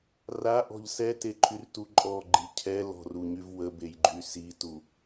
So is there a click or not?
yes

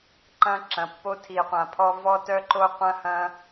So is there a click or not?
yes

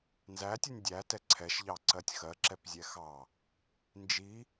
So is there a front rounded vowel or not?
no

